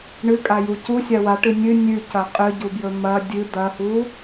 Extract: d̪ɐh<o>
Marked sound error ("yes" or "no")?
yes